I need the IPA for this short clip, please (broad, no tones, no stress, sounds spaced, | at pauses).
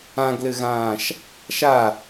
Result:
ã ɡ l ɘ ɣ ãː ʃ | ʃ a